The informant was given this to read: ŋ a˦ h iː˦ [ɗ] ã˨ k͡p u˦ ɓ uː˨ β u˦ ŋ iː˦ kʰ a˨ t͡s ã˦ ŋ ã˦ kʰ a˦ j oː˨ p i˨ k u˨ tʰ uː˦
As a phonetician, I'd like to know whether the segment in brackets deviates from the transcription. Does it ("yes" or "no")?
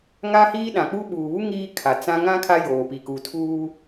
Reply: no